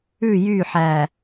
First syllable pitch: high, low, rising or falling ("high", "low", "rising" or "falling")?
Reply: falling